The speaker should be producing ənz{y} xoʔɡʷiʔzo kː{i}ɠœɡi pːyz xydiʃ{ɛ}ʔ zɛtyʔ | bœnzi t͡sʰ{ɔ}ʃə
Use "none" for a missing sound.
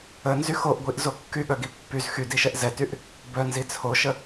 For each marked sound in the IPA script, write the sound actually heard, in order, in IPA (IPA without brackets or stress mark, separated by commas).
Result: y, y, ɛ, o